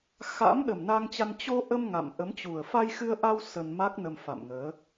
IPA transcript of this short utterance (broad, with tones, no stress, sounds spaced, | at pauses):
x a̰˧˥ m ɗ ə˨˩ m n a˧ ŋ t͡ɕ a˧ n t͡ɕ o˧ ʔ ə˧ m ŋ a̰˧˨ m ʔ ə˨˦ m t͡ɕ u˨˩ ə̯ f a˧ j x ɨ˧ ə̯ ʔ a˧ w s ə˧ n m a˦˥ k̚ n ə˧ m f a̰˧˨ m ŋ əː˨˦